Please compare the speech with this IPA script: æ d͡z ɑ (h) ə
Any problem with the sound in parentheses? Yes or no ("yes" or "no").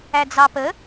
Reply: yes